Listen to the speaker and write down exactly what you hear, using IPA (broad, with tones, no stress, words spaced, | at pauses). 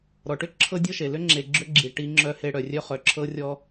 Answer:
ɾɔ˨ʈʏ˦ ǁʰɤ˦dʲɤ˦ʃe˨ lʏ˦ŋ͡ǁe˨ ɡ͡ǁʏ˦ɡ͡ǁi˨ ʈi˦ ŋ͡ǁœ˦he˦ ɽœ˨rʲœ˦χœ˨ǁʰɤ˦ rʲɔ˦